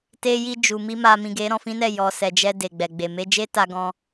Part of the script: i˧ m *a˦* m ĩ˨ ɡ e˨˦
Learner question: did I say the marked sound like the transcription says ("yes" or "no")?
no